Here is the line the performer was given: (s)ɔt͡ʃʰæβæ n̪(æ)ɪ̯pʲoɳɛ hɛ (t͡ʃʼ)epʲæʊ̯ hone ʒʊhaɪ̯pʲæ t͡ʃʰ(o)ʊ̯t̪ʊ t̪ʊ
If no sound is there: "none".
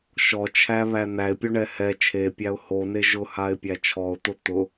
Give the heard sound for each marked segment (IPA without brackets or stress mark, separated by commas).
ʃ, æ, t͡ʃʰ, ɔ